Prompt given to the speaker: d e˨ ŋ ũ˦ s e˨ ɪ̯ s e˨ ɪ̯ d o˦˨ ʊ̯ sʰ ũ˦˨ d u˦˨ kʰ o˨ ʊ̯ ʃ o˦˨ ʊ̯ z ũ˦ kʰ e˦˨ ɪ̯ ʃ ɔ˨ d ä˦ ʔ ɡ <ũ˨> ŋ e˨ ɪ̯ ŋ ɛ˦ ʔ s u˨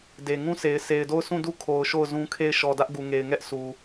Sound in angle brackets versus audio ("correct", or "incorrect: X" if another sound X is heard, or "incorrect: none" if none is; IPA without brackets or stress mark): incorrect: u˨